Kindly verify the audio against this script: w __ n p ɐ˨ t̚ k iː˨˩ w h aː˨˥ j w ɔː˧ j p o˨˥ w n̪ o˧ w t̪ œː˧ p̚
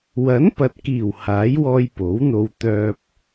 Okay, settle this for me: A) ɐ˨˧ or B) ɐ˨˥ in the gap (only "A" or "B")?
B